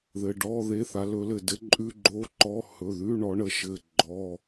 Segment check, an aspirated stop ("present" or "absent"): absent